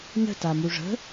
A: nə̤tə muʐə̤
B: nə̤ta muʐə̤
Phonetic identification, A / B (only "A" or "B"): B